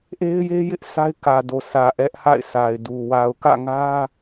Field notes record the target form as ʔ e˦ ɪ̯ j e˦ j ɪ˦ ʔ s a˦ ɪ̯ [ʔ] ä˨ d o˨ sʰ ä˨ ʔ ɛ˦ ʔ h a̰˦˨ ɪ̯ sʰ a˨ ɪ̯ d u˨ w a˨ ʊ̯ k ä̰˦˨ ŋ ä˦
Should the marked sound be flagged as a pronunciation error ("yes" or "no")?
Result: yes